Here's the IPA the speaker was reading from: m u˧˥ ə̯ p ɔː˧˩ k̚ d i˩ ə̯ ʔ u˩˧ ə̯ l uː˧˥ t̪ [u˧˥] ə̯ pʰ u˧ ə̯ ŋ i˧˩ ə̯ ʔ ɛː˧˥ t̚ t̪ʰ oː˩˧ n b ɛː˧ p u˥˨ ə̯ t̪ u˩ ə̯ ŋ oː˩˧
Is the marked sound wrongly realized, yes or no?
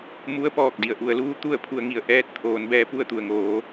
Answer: yes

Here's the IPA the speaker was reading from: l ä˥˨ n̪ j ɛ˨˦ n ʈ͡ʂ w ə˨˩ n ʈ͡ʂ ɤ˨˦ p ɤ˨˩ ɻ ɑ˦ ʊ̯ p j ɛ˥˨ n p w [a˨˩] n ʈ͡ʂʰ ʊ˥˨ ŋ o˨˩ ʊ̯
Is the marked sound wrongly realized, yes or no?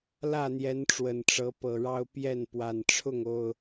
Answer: no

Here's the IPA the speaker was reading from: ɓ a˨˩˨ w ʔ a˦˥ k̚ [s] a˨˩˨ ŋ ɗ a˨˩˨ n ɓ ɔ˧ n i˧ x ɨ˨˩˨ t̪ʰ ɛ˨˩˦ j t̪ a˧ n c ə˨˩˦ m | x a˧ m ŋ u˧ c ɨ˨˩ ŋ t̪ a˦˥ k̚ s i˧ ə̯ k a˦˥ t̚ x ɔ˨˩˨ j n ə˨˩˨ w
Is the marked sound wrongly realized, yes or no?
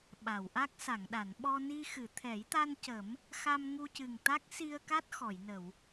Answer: no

